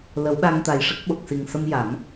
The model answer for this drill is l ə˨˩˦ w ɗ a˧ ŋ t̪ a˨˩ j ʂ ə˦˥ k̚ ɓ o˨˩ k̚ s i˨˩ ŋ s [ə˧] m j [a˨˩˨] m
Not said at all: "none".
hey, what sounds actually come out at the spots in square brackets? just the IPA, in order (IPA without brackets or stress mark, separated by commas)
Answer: ə˧, a˨˩˦